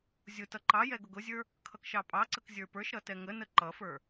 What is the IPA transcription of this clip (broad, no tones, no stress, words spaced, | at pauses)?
zʲʊ tʌǃɑjɛ ɡʊɡʊzʲə˞ | kʰʌkʃɑpʼɑǀək zʲə˞pə˞ʃɾʌ tɛŋənə ǃʌfə˞